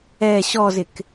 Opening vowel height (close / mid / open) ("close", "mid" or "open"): mid